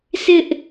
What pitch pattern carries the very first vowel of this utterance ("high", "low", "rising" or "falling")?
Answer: high